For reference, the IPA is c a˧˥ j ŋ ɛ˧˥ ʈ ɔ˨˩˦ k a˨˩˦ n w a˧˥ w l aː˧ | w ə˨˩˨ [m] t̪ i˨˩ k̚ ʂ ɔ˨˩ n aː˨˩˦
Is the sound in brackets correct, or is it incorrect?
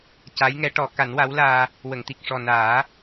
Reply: incorrect